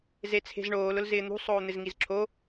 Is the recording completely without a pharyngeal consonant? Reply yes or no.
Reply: yes